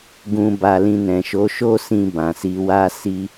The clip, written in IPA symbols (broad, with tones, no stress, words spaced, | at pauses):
ɡũ˨ba˨ lĩ˧nɛ̃˨ ʃo˨˦ʃo˦ sĩ˧bã˨ si˧wa˦ si˧